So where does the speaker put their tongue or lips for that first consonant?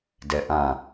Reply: tongue tip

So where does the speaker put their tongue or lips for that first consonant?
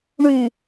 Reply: retroflex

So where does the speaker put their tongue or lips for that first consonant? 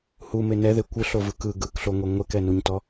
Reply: throat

